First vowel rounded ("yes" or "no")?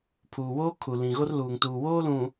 yes